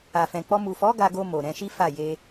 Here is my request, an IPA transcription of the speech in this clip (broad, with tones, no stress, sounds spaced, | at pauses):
a˨ f ɛ̃˨ k͡p ɔ˧ m u˨ f ɔ˨˦ ɡ a˧ ɡ o˧ m o˨ ɾ ɛ̃˧ ʃ i˦ f a˦˨ j e˧